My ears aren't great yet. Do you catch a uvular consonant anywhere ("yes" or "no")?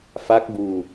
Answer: no